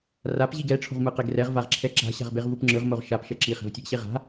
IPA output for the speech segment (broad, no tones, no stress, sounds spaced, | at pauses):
r a p ʑ i ɡ ɛ ʈ͡ʂʰ o̤ ʁ m ɯ q e ɡ r ɛ ʁ v a ʁ ǁʰ ɛ ǁ a̤ ɕ a̤ ʁ b e ʁ v u p ŋ͡ǁ ɯ ʁ m o ʁ ʃ a p ʃ ɛ ǁ i χ ɛ̤ v tʲ ɛ ɡ ɕ e ʁ a̤